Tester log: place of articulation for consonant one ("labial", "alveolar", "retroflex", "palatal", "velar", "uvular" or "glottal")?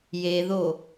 palatal